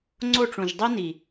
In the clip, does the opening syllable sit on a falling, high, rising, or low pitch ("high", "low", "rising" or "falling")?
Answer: falling